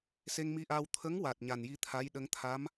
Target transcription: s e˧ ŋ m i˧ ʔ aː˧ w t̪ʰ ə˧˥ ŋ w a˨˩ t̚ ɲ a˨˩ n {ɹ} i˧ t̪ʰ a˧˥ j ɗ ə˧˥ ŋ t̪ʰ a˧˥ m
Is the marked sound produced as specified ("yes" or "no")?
no